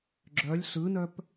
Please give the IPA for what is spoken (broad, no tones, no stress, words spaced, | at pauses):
ɡ͡ǁœlʲ ɬɯnœp